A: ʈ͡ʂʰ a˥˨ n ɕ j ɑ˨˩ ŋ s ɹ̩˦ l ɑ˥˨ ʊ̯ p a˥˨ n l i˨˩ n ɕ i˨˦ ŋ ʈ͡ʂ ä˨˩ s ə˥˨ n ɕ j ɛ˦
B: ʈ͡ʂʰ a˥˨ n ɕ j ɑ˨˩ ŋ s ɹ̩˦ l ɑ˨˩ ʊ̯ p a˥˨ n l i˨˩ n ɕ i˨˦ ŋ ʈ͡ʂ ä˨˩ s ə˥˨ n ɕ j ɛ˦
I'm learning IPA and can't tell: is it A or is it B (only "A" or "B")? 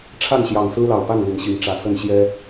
B